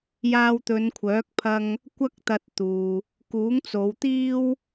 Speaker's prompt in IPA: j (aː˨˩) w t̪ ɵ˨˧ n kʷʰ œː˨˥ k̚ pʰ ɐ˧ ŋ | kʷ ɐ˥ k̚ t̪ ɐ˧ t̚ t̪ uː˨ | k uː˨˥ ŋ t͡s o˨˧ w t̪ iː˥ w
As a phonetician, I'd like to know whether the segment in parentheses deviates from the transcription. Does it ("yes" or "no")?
yes